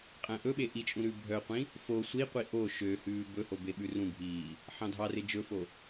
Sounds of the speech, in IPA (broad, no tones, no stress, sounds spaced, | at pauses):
qʼ æ̃ ʔ ɵ ɓ e ʔ i t͡ʃʼ ũ ɾ ʉ bʱ œ qʷ ĩ | f o sʷ i qʷ i ʔ o ʃ ø h ʉː b ɵ h o b e ɓ ʉ r ũ bʱ iː | ħ ɑ̃ dʱ ɑ r e d͡ʒ ɵ f o